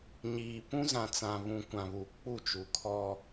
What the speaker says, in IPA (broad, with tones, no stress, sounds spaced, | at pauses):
ɲ iː˨ p ũ˦ z ã˨ t͡s ã˨ β ũ˨ kʷ ã˨ β u˨ k͡p u˦˨ t͡ʃ u˨ kʰ ɔ˦